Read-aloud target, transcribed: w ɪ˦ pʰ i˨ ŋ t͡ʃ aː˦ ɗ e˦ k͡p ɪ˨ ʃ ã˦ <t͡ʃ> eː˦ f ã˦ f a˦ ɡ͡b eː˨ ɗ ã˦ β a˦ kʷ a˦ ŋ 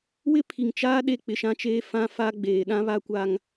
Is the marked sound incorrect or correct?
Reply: correct